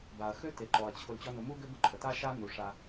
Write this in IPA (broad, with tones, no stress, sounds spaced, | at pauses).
b a˩ ɐ̯ x ø˥ t e˩ ǃ ɔ˩ ɐ̯ t͡ɕʰ ʊ˨ l t͡ɕ ɔ˦ n ʊ˨ m u˥ ɡ ø˥ b ʊ˨ ǃʼ ə˨ t a˥ ʃ a˥ n u˩ ʂ a˨